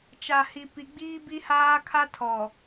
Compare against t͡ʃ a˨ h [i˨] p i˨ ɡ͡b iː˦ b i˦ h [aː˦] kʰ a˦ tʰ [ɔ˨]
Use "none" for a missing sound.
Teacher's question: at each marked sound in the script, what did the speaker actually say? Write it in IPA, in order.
i˨, aː˦, ɔ˨

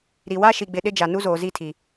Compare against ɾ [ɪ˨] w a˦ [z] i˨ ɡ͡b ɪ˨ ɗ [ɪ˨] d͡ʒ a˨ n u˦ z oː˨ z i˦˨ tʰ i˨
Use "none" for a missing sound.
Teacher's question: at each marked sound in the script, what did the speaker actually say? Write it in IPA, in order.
i˨, ʃ, ɪ˦

